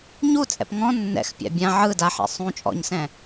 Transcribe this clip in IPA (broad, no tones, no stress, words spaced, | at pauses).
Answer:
ɲut͡sʼɛ̰p ŋɔ̃ nːɛ̰x pʲa̰bʲã ʕɯ daħɛ̰ sˤũ t͡ʃʼɔ̰ɲsɛ̃